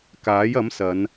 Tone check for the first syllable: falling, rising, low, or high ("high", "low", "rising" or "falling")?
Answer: rising